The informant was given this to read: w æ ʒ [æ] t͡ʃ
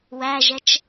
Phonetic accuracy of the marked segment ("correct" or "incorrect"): incorrect